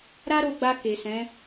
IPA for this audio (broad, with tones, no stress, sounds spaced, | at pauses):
ɾ a˦ ɾ o˧ ɡ͡b a˧ k e˨ s ɛ̃˨˦